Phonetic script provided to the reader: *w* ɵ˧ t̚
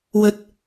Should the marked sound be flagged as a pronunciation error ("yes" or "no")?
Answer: no